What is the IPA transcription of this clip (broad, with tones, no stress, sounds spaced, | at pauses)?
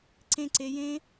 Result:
ǀ ẽ˥˨ ǀ e˦˥ j ẽ˦˥